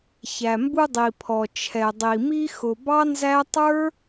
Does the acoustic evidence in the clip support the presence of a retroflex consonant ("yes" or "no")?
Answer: no